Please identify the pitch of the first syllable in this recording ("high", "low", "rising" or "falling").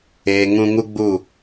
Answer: low